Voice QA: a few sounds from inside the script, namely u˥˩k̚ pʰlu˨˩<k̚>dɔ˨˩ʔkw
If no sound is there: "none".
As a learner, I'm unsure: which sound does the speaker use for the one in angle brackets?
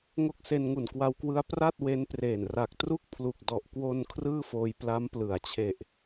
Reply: k̚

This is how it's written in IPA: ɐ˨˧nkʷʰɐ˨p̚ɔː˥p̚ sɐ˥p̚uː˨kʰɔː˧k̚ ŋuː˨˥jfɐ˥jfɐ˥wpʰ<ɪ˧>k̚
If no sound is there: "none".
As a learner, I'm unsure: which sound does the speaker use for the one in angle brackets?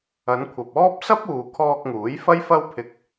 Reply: ɪ˧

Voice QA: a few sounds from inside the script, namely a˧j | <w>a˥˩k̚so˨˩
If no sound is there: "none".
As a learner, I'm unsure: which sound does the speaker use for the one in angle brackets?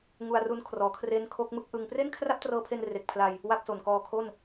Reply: w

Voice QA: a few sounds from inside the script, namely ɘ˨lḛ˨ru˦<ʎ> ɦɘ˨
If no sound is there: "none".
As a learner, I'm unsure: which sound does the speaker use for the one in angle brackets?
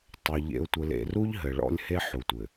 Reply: ʎ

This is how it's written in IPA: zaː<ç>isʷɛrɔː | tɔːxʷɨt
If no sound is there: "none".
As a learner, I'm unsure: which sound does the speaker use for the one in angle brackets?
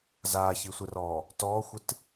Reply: ç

